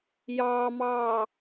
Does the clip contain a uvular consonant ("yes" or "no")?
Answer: no